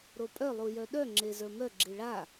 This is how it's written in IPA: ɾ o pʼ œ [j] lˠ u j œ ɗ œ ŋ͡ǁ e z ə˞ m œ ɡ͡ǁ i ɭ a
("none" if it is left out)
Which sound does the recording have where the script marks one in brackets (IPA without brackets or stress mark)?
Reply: none